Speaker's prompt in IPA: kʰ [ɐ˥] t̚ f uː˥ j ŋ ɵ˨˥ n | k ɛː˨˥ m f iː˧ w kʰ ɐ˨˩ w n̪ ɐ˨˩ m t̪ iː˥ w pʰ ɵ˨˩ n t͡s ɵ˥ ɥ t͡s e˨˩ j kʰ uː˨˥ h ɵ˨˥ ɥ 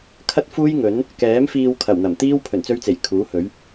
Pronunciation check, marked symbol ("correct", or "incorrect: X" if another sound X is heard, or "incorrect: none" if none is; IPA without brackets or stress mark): correct